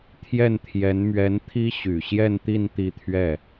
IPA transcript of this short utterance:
t̪ʰ j ɛ˥˩ n t̪ʰ j ɛ˧˥ n m ɥ ɛ˧˥ n t̪ʰ i˥ ɕ y˨˩ ɕ j ɛ˥˧ n t̪ i˥˧ n t̪ i˥˧ t̪ʰ ɥ ɛ˥˩

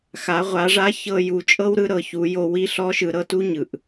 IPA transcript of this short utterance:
x a˩˧ ʁʷ a˩˧ ʐ a˧˥ ç ɤ˧ j u˩˧ t͡ʃʼ ɤ˥ w ɾ ɯ˥ ɾ ɤ˩ ç u˩˧ j o˧ w i˧˥ ɬ ɔ˧˥ ʃ ɯ˩˧ ɾ ɤ˩˧ t u˥ ɲ ɯ˩ ʔ

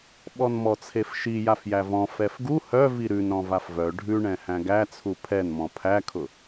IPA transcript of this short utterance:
ɓ ɔ n m ɔ t͡sʰ e f ʃ i j a f j æ v ɔ̃ f ɛ f ɡ u h œ v i ɾ ʉ n ɾ ɔ̃ v a f v œ ɖʱ ʉ ɳ ɛ̃ h æ̃ ɡ æ t͡sʰ u pʰ ɛ n m ɔ̃ pʰ æ kʰ ʊ

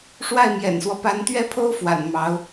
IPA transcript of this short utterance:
ʂ w a˥˩ ɪ̯ m j ɛ̰˨˩ n s w ɔ˦ p a˧˥ n t̪ ɥ ɛ˥ pʰ o˥ ʊ̯ f w a̰˨˩ n m ɑ˧˥ ʊ̯

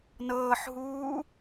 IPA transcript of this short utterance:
n ɤː ħ ɦ uː

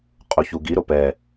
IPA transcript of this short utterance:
qʼ u ç u ɡ i ɾ o p ɛ

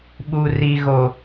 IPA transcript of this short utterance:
ɓ u˨ r i˨ ɣ o˨

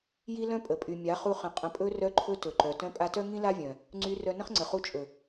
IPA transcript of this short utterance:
j i˦ l œ̃˦ pʼ ə˨ pʼ y˨ mʲ a˨˦ χ u˧ χ ə̃˨ qʼ ə̃˨ pʼ ɵ˧ r œ˧ ǃʰ ɵ˧ t ɵ˨ ǃ œ˨ t œ̃˧ pʼ a˧ t œ˦ ŋ ĩ˦ l a˦ vʲ œ̃˨ | ŋ͡ǀ y˧ r œ˧ n ə̃˦ χ ŋ͡ǀ ə˨ χ u˧ t͡ʃʼ ɵ˨

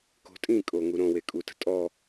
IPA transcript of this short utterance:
k o̤ tʼ ĩ kʼ o ŋ u ɾ õ w e kʼ u t ə̤ tʼ ɔ

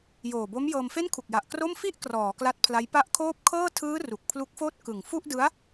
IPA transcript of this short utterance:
j oː˨˩ b o˦˥ m j ɤː˧ m f e˥˩ n kʰ u˨˩ k̚ j a˨˩ ʔ k r o˥˩ m f i˥˩ ʔ k r ɔː˩˦ k l a˦˥ t̚ pʰ l a˦˥ j p a˦˥ ʔ kʰ oː˥˩ p̚ kʰ ɤː˥˩ tʰ ɯː˦˥ r u˨˩ k̚ pʰ l u˦˥ k̚ f oː˥˩ t̚ k ɯ˨˩ ŋ f u˥˩ ʔ d ɯ˦˥ a̯

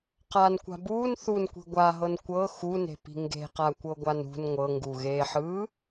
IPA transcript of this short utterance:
q a n kʷ a̤ b uː n θ u n kʷ i̤ ɡʷ a ɦ ɤ n kʷ ɤ x u n e̤ p i̤ ŋ ɡ e̤ q a kʷ ɤ ɡʷ a n ṳ n ŋʷ ɤ ŋ ɡ u ɣ eː ħ ɯː

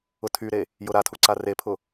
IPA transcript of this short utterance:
ʊ tʰ y ɾ e | j ʊ ɾ a tʰ u ǀ a r e pʰ ʊ

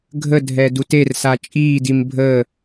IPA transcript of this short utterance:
ɡʱ ə dʱ ɛ d u t e r s a t͡ʃʼ iː d i m bʱ əː

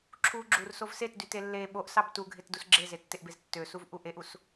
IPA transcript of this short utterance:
ǁʰ u ɡ͡ǁ u r s o v s e t d y t e lː e ɓ o ʔ s ɑ b t u ɡʱ e t d u s ɡ͡ǁ e z e tː e ʔ b e z tː ø s u v ʔ u ʔ e ʔ u s

